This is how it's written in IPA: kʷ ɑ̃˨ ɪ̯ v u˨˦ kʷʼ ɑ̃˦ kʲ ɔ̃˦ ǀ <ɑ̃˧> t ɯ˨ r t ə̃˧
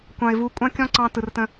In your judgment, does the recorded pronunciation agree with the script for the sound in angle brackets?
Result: yes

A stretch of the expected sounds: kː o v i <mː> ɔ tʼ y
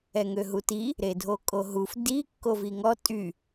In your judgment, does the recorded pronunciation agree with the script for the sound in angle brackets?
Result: no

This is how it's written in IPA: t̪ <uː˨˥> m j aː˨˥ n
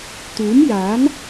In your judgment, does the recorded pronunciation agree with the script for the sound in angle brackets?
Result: yes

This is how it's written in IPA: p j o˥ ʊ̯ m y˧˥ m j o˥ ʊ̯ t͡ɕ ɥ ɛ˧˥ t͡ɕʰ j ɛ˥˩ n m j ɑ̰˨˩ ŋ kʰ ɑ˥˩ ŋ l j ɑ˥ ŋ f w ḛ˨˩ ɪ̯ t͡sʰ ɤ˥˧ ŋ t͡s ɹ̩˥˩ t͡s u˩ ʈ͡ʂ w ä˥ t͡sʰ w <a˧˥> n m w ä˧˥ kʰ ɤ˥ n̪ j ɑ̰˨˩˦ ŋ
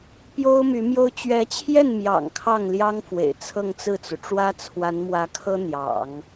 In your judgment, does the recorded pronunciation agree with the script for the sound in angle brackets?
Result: yes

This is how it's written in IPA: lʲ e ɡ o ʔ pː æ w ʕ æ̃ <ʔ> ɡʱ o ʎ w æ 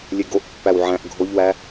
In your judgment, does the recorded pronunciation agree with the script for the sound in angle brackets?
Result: yes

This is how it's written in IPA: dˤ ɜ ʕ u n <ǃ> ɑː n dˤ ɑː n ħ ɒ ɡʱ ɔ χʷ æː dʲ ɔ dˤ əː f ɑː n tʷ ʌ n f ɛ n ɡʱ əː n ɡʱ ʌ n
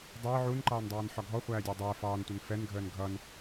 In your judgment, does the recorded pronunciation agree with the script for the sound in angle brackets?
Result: yes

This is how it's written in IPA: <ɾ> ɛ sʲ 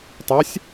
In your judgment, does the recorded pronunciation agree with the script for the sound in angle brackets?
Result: no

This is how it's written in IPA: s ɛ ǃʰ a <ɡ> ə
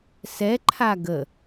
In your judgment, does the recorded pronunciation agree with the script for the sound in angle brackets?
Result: yes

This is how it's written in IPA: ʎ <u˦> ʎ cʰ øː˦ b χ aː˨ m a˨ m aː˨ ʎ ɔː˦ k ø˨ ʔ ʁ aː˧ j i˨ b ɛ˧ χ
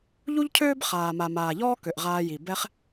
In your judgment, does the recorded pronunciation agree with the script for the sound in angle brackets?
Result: yes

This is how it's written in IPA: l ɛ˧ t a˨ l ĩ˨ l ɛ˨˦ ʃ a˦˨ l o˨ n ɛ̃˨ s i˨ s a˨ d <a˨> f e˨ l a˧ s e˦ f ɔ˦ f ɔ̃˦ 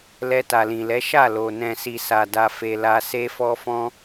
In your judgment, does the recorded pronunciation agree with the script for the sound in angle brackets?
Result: yes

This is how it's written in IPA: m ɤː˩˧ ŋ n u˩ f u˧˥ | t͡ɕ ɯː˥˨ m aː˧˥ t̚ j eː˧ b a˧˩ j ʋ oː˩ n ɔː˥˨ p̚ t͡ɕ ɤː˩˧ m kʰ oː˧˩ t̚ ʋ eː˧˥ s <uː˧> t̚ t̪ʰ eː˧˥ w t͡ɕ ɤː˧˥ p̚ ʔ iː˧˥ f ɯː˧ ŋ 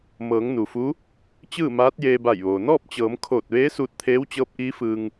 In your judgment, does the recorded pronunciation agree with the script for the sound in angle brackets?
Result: yes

